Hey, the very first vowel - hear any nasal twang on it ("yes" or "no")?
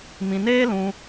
yes